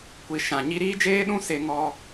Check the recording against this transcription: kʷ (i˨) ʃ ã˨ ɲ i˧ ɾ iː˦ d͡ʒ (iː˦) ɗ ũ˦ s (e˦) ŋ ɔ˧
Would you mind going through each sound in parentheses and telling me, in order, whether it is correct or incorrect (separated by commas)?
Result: correct, incorrect, incorrect